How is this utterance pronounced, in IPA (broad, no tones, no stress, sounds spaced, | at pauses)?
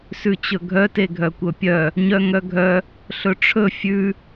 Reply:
s ʉ t͡ɕ ɵ ɡʱ œ t e ɡʱ œ kʷ œ pʲ œ | ɲ œ ŋ œ ɡʱ œ | ɬ ɵ ʈ͡ʂʰ ɵ fʲ ʉ